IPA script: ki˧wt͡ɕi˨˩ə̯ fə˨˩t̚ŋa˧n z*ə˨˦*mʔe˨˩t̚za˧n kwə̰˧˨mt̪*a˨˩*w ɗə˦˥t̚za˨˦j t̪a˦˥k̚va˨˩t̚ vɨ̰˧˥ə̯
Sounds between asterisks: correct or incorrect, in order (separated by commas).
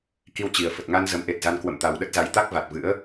correct, correct